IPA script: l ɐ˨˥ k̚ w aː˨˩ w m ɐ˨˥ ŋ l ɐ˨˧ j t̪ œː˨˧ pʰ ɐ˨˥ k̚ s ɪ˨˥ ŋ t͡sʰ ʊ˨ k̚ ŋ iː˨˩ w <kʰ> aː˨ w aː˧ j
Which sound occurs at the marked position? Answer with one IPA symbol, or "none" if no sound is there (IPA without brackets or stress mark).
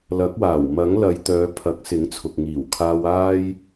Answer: kʰ